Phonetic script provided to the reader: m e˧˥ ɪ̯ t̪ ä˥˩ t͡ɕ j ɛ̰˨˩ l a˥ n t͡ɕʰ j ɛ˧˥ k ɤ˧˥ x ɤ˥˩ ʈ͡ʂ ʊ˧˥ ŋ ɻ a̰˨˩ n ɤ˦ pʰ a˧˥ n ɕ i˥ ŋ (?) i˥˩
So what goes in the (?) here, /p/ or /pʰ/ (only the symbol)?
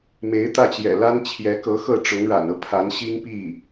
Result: p